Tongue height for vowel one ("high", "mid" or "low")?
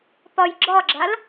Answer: low